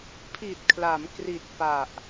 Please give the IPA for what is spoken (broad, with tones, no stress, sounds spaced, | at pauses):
pʰ i˨˩ t̚ kʰ l a˩˦ m k r i˨˩ t̚ p a˨˩ ʔ